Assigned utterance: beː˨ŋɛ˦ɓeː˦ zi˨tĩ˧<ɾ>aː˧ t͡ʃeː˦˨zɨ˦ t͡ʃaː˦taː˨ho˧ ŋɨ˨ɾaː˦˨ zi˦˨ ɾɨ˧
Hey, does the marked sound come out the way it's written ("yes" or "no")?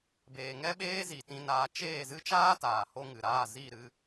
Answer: no